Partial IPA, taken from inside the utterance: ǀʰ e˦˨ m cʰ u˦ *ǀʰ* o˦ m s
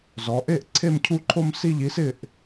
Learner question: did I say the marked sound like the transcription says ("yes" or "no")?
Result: no